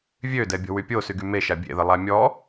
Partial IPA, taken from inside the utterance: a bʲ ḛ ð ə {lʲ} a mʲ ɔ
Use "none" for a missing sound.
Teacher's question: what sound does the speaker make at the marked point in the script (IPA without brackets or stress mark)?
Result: lˠ